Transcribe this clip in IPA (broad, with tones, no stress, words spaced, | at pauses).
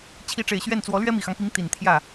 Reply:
t͡ɕʰi˧˥ʈ͡ʂe˨˩ɪ̯ɕɥɛ˥˩nt͡swɔ˧˥ lɥɛ˥mi˨˩xɑ˦ŋpi˧˥ŋ t̪i˨˩nt̪ʰjä˥˩